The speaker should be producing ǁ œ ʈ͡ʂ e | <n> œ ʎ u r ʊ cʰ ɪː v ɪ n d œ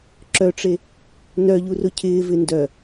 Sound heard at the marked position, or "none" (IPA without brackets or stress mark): n